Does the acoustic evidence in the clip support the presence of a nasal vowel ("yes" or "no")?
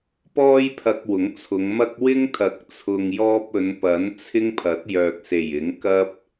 no